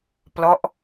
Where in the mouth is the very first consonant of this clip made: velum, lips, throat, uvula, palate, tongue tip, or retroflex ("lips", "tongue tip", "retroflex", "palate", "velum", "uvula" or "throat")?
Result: lips